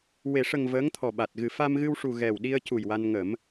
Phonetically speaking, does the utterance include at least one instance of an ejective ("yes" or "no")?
no